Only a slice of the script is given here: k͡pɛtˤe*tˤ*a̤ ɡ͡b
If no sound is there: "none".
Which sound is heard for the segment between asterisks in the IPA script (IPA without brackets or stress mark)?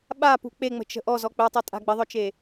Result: tʼ